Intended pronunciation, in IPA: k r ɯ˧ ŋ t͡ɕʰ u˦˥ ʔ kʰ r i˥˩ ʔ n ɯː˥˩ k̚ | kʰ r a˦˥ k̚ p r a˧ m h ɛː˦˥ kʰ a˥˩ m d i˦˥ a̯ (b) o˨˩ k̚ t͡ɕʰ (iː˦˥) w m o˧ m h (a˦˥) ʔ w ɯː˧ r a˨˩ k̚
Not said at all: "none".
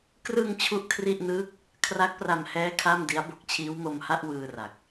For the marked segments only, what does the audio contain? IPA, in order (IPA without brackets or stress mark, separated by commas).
b, iː˦˥, a˥˩